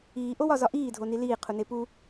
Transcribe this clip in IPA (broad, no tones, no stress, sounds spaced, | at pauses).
iː ʔ o w ɒ z ɒ ʔ iː dʱ o n i l iː qʰ u n e p u